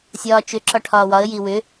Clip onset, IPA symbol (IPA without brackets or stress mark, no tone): sʲ